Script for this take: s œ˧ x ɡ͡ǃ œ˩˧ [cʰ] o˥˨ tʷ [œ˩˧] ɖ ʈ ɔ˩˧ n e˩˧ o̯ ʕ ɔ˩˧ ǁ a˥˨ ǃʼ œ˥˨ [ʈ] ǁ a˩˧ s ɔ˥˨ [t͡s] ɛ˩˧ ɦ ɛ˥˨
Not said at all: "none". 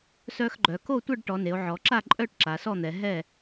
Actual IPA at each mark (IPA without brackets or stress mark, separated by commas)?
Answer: k, œ˥˨, ʈ, n̪